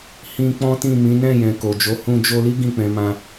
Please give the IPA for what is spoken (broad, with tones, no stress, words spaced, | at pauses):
hĩ˧ k͡pɔ̃˦tĩ˦˨mĩ˨˦ nɛ̃˦˨jɛ̃˨ ko˨d͡ʒo˨˦ hũ˧d͡ʒo˧li˦ ɡĩ˦˨k͡pɛ̃˨˦mã˧